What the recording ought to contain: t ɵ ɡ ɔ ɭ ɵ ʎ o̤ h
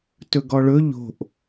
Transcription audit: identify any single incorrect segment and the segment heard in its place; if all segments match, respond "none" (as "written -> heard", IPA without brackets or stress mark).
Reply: h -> ʔ